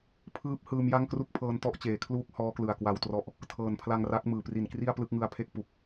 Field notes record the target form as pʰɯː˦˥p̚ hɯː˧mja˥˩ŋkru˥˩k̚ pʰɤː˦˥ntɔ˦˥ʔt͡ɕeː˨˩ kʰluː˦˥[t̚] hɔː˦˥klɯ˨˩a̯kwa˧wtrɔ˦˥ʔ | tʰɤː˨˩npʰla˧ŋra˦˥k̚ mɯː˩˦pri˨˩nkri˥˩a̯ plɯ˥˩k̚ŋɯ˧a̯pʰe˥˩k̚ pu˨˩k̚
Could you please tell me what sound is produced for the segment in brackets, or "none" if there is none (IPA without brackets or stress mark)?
k̚